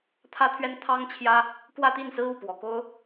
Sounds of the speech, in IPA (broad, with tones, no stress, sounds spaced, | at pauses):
t̪ʰ ä˥ t̪ʰ ɥ ɛ˥ n t̪ʰ ɑ˥ ŋ t͡ɕʰ j ä˥ | k w ä˥˧ t̪ i˥˩ n s ɹ̩˥ u˥˩ p w ɔ˨˩ k o˥ ʊ̯